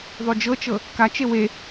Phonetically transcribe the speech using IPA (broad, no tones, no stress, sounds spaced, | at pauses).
ðˤ u d͡ʒ ɤ t͡ʃ ɤ | k a t͡ʃ e w e